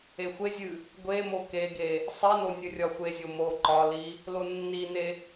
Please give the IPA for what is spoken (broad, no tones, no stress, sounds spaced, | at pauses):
e xʷ e zʲ ɨ | ɡʷ e m o k e ɡ e | sˤ i n o nʲ ɨ rʲ ɒ xʷ e zʲ o m o ǃ ɒ l i | l o nː i n e